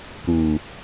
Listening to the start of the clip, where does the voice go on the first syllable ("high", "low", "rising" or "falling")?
low